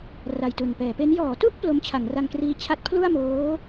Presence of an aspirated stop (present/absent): present